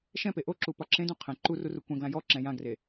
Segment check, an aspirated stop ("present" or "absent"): present